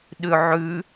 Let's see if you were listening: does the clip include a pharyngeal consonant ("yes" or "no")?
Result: yes